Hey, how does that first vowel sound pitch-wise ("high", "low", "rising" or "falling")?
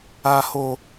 high